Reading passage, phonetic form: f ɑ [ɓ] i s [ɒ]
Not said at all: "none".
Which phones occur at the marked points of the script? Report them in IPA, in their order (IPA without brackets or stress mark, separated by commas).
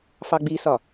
ɡ͡b, ɒ